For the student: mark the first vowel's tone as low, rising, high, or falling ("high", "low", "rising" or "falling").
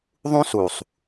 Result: high